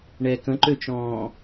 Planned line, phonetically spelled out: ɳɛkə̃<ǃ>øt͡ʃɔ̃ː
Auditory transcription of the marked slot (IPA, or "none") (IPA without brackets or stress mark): ǃ